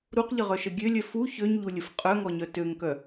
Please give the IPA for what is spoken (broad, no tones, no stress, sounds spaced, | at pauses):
ɾ u q ʎ ə ʁ œ ʃ ə ɡʲ ø lʲ œ f u ç ø ɲ ʎ u lʲ ə f qʼ œ ŋ ɔ ɲ œ t ø ŋ k œ